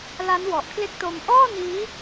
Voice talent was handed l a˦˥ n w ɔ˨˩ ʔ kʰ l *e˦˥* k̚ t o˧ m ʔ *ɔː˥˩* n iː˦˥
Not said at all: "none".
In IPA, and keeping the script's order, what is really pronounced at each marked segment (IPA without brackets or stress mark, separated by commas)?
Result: e˦˥, ɔː˥˩